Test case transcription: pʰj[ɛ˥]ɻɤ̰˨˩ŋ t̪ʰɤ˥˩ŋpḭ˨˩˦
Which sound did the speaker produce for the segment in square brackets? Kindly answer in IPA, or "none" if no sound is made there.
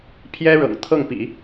ɛ˥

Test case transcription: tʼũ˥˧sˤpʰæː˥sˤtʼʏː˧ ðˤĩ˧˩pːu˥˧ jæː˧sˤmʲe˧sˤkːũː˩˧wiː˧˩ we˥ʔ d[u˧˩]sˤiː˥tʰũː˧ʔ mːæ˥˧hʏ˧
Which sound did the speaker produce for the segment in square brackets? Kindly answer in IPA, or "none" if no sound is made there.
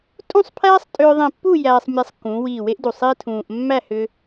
u˧˩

